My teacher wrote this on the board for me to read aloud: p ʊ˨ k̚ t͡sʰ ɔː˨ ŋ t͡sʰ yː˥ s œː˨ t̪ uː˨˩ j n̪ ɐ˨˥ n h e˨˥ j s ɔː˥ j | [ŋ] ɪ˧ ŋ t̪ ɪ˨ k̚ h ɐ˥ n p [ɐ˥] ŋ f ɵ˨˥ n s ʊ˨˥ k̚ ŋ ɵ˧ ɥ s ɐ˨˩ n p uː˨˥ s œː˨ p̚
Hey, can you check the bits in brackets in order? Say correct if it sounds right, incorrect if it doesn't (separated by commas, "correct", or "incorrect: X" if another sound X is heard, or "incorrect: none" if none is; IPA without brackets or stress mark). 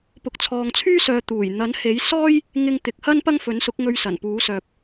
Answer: correct, correct